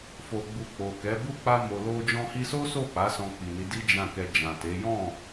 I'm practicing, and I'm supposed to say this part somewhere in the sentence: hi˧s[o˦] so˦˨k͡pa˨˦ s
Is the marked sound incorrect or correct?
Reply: correct